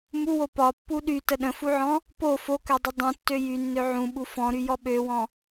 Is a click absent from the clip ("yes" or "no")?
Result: yes